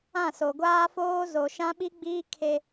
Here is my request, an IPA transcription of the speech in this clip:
ã˦˨ s o˨ ɡʷ aː˦ f oː˦ z o˨ ʃ ã˦ ɓ i˦ ɡ͡b iː˦ kʰ e˦

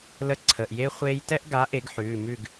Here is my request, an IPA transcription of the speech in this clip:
l ə˦˨ ǀʰ ə˩˧˩ ʔ j e˦˥ χʷ eː˦˥ j t ɛ˦˥ ʔ ɡ a˨˥ ʔ e˨˩˦ ɡ ħ ʉː˩˧˩ m ʉ˦˨ ɡ

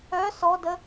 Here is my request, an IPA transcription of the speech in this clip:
œ s ɔ d ə

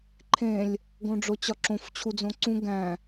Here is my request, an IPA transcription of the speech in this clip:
ǃʰ ẽ lʲ | ɡ õ ɖ͡ʐ o t͡ɕ ɒ ǁ õ f t͡ɕʰ u d͡z õ ǀ ũ ɡ æ̃

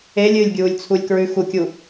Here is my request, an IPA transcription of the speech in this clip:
e lʲ ɨː lʲ ɡʲ uː lʲ t͡sʰ u lʲ k ɹ ʉ x u kʲ u

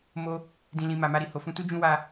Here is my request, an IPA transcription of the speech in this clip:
m o˧ | d ĩ˨ l ĩ˨ m a˨ m a˧ ɾ i˨ h o˨ f ũ˧ t u˦ d͡ʒ ũ˦ w a˧

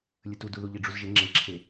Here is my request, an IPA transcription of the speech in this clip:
lʲ ə t u d u ð u ʎ i ɖ͡ʐ u z ʒ ɪ ŋ͡ǁ e ǁʰ e

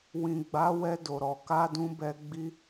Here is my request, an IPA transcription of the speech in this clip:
w ĩ˨ ɡ͡b a˨˦ w ɛ˧ d o˨ ɾ ɔ˨ k a˧ d ũ˧ b ɛ˧ ɡ͡b i˧

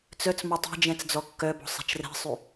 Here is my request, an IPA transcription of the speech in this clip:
t͡s œ t͡s m ɔ tˤ ɛ̤ d͡ʒ ɛ̃ t͡s d͡z ɔ kː œ b ɔ̤ sˤ ɛ̤ t͡ʃ r ɛ̤ sˤ y

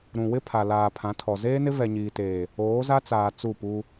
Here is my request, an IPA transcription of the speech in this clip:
ɾ ũ˨ w ɪ˦ pʰ a˨ l aː˨ pʰ ã˨˦ tʰ ɔ˨ z eː˦ n ɪ˦ v ɛ˨ ɲ iː˨ t eː˨ | oː˨˦ z a˦ t͡s aː˨ t͡s u˦˨ p u˦

